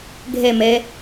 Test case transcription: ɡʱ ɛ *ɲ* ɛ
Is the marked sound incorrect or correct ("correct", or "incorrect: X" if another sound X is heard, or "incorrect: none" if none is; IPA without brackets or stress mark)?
incorrect: m